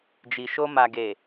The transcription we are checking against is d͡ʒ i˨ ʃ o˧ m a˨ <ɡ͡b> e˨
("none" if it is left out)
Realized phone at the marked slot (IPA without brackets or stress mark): ɡ